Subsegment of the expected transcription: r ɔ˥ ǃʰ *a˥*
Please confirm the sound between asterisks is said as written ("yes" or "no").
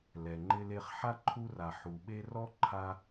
yes